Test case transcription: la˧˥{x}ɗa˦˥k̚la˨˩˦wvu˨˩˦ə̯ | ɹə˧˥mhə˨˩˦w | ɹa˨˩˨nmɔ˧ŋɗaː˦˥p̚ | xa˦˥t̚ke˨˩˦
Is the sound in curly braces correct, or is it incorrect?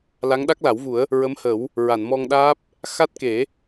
incorrect